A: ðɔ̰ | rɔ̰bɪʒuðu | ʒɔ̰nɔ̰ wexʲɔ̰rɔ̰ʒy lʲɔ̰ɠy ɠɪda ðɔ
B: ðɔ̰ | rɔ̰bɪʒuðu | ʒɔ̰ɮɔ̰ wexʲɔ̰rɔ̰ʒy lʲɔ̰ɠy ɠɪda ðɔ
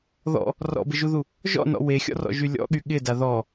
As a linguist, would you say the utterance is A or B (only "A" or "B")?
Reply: A